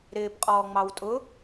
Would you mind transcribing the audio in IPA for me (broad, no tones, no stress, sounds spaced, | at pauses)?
ɾ ɪː p qʼ ɔː ŋ͡m ɑ w tʼ ʊ